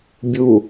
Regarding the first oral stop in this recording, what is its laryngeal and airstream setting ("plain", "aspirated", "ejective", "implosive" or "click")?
plain